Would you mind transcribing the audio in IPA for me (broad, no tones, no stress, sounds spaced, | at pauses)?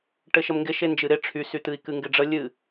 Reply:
ʈ ɘ ʃ ə m ŋ ɡ ɪ ʃ e n d͡ʒ ɨ ɾ ɪ ʈ͡ʂʰ y s y t̪ ɨ i̯ k ɨ ŋ ɡ ɪ ɖ͡ʐ ə lʲ ɨ